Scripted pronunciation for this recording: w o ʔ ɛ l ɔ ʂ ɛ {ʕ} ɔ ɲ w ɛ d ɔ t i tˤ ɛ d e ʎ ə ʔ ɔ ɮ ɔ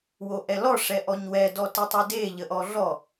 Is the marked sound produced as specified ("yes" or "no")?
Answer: no